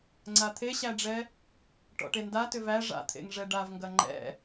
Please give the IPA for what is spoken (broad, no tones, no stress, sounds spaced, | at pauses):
ŋ͡ǀ a t̪ʰ e ɕ æ ɖ͡ʐ ɛ | ʈ ɔ̰ ʈ e n d a t ʏ v æ ʐ a̰ t̪ʰ ḛ ŋ ʐ ɛ ɖ a v ŋ ɡ ɐ ŋ͡ǃ ɛ̰